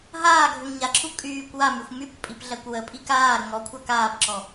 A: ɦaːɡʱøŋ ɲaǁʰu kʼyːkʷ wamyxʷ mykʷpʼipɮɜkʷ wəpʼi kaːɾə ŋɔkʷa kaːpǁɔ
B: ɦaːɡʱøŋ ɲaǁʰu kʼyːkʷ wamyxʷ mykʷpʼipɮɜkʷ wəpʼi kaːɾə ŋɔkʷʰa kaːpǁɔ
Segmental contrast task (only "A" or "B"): B